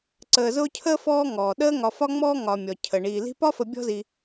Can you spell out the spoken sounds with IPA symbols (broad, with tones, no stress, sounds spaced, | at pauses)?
ǀ əː˨ z ʊː˦ cʰ əː˥ f ɔː˦ ŋ ɔː˩ ɗ əː˦ ŋ ɒ˨ f ɒ˦ ŋ͡m ɔː˦ ŋ ɒ˨ mʲ ɔ˩ cʰ ə˩ ɳ iː˩ l i̤˦ p ɒ˦ f ə˨ bʲ ɔ̤˦ z i˨